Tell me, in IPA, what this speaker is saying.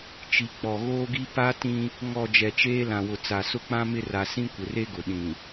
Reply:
t͡ʃi˨ k͡pɔ˨ɣoː˦ɡi˦ pa˦tĩ˦ | ŋɔ˨ d͡ʒɛ˨t͡ʃeː˦ lã˨wʊ˨ t͡sa˨sʊ˦k͡pã˦ mɪ˦ra˨ sĩ˦kʷɪ˨re˦ɡʊ˨ ɗĩ˨

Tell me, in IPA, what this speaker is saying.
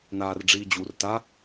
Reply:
naːrɖ͡ʐiːd͡ʑur ta

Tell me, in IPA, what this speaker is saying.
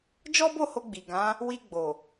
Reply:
d͡ʒɔ˦bo˦˨ho˧ ɡ͡bi˨ɡã˨˦ | wi˧ɡ͡bo˨

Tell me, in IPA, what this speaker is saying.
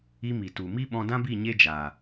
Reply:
i˧ mi˨tu˨ mi˦ɓɔ̃˧dã˦bi˦˨ ɲe˦d͡ʒaː˨

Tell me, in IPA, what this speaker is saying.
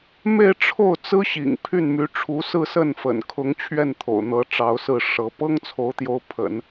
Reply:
me˥˧ɪ̯ʈ͡ʂʰo˥˩ʊ̯ t͡sɹ̩˥ɕḭ˨˩ŋ pʰy˥˩nmy˧˥ʈ͡ʂʰu˧˥ sɹ̩˥˧sə˥˩nfə̰˨˩n kʰʊ˧˥ŋ t͡ɕʰɥɛ˥˩nt̪ʰo̰˨˩ʊ̯n̪ɤ˧˥ ʈ͡ʂɑ˧˥ʊ̯sɹ̩˥˩ʂɤ˧˥ pɤ˥ŋt͡sʰo˧˥ʊ̯t̪jo˧˥ʊ̯ pʰə̰˨˩˦n

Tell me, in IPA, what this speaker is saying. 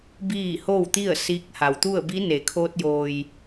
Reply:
biː˥˨ hoː˥˨wt̪i˥˨ə̯ siː˧˥k̚ ha˩wt̪u˥˨ə̯ bi˧˥ne˩˧kʰoː˧t̚ joː˩j

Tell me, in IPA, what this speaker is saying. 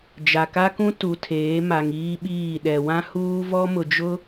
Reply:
d͡ʒa˨ka˦kũ˦ tu˨tʰeː˨˦ma˨ŋ iː˦ɓiː˦˨ ɗɛ˨wã˦ huː˦vɔ˦mʊ˨ d͡ʒʊ˦

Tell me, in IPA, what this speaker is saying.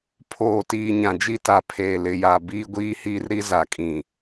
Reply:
pʰoː˨tiː˨ ɲã˨d͡ʒi˦ta˨pʰeː˨ lɪ˨ja˨ biː˦ɡʷiː˦hiː˦rɾi˦ za˨kʼĩ˨

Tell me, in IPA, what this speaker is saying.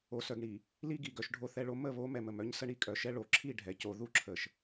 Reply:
o˨ sœ˨ɡɳi˨ | li˦ɡi˨ɡœ˨ʃ ɖʱo˨θɛ˨ɭo˨ mə˦˨βo˨˦ mɛ˨mə˨m œ˦ɲsə˦ɳi˦ kʼœ˨ʃɛ˦ɭo˨˦ǁʰi˦˨ ɖʱɛ˨co˨ ðu˦ǁʰə˨ʃ

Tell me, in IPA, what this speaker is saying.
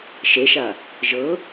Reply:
ʃeʃa | ʒɤ

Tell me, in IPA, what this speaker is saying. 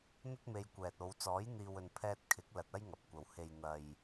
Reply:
n̪ɐ˥t̚me˧jkʷɛː˨t̚o˨˧w t͡sɔː˨˥jn̪iː˨wɵ˨n pʰɛː˧t̚kʰɪ˨˥k̚ lɐ˧t̚ɐ˥jŋɐ˨p̚kʷɐ˨w he˨jn̪ɐ˨j

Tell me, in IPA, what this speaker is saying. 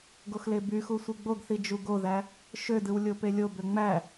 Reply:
ɡoxlebyxu sʷiɡ͡boɡθi d͡ʒuɡoðæ | ʃødɯw lʲopelʲobø ŋ͡mæ

